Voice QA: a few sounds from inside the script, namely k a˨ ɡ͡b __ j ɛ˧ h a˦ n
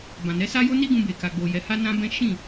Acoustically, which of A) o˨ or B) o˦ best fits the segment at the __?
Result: A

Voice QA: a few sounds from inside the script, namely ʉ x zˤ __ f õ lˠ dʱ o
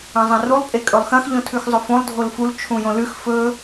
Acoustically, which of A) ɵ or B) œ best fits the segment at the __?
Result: A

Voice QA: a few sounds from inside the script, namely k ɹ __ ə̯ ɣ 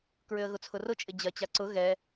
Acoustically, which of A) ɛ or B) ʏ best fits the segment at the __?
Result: B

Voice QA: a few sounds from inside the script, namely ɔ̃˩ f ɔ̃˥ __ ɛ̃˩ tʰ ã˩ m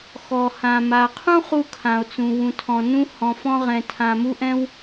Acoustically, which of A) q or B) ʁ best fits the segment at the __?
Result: B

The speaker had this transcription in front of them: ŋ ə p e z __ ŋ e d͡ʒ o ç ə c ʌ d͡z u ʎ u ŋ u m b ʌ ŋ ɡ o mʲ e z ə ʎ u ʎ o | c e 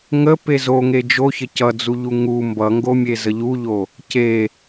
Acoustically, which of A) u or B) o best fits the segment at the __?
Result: B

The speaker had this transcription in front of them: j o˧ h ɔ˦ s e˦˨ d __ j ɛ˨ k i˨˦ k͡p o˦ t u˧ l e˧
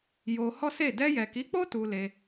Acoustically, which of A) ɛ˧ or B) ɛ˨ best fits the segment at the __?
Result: A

